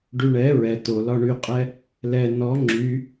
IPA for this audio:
ɖyɳɛ ɹɛ tolɒ ɳyqʼɛ | lɛ nɔ ŋ͡ǁy

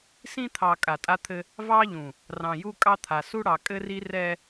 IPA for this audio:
sĩ˦t̪ʰɑ˨ kʼa˨tʼa˦t̪ʰɘ˦ | vɑ˦ʎũ˨ | rɑ̃˨ju˦kʼɑ˦t̪ʰa˨ su˦ɽɑ˨kʼɘ˦ri˦ rɛ˦

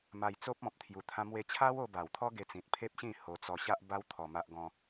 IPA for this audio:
ma˧jt͡so˦p̚ ɔ̃˨p̚ t̪ʰju˧t̪ʰã˦ mwe˧t͡ɕʰa˦wo˧ ba˨˩wt̪ʰɔ˦ɡe˧t͡sĩ˨t̚ pʰe˦p̚ɕĩ˥˧ho˧ t͡sɔ˧ɕa˦ʔba˦w t̪ʰɔ˧ma˦ʔɡɔ̃˦

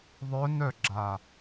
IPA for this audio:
ðˤœnœɡ͡ǁa

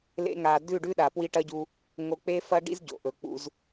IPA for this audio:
lḛ˧ŋa˨ dʉ˦˨ɖʉ˦ ɗa˨pwi˦ʈɐ˦ɟu˧ | ŋo˧k͡pe˦fɐ˦ɖḭ˦z ɟo̰˨ʔɵ˨k͡pṵ˧z

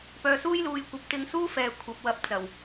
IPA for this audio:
pœː˨suː˥jluː˨˧jkʷɐ˨˥p̚ t̪ɪ˧ŋsuː˥fɛː˨ kʷʰɐ˨p̚wɐ˧p̚ t͡sɐ˨˩w

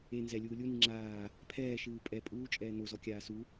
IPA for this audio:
e nzɛlʲuː lʲuni ŋ͡ǁaː | pʰɛːʃɨː pʼɛ pʼuːt͡ʃʼɛː nozɔkʲaː su

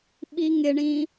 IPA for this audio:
ɓiŋɪɳĩ

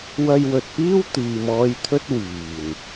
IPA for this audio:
wɐ˧jwɵ˨t̚piː˥w t̪iː˨mɔː˧jt̪ʰɵ˥t̚ wiː˨˩n

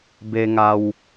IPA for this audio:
be˧ŋa˧w

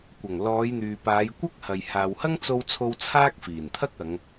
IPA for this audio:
kʷɐ˨˩ŋ lɔː˨˧jn̪yː˨paː˨˧j kʷɐ˥k̚hɐ˨j haː˨whɐ˥ŋt͡so˧wt͡sʰo˧w t͡sʰaː˥k̚fiː˨˩nt̪ʰɐ˥k̚ɐ˨˧ŋ

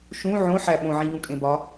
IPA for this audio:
ʃũ ʕõħæ ɓõʕĩʎũkʼẽ bɒ

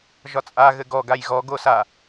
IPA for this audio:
ʒɒt͡sʼa ɣɘɡɔ ɡajɣɔ ɡosa

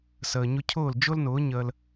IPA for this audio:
səː˩ɲʊ˧cʰʊː˥˩l d͡ʒʊ˥lnʊː˩˥ ɲəː˧l

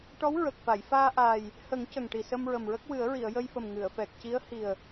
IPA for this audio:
ʈɔ˧˥w ɹə˨˩k̚fa˨˩˨j faː˧ʔaː˨˩j | hə˨˩˦ŋ cə˨˩ŋʈi˨˩ sə˧mɹə˨˩mɹə˦˥k̚ wɨ˨˩˦ə̯ɹi˨˩˨ə̯ jə˧jfə˨˩m ŋɨ˨˩˨ə̯fɛ˨˩k̚ ci˧˥ə̯hi˨˩ə̯

